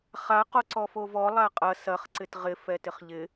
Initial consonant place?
uvular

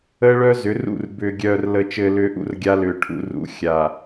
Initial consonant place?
retroflex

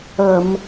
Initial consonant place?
labial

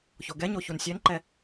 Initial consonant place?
palatal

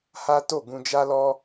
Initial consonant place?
glottal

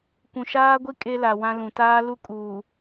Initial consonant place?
velar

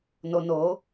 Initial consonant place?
alveolar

